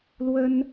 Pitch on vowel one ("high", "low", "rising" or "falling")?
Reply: high